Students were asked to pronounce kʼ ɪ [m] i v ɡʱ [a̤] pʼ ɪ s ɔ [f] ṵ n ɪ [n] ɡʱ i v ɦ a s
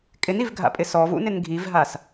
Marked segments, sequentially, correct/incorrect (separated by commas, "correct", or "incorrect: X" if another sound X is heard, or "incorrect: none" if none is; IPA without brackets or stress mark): incorrect: n, incorrect: a̰, incorrect: v, correct